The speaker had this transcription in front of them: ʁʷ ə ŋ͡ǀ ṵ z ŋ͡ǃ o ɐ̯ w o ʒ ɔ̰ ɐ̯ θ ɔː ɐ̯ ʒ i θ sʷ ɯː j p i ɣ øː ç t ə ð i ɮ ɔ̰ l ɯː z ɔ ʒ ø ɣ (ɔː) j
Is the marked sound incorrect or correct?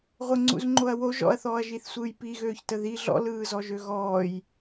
correct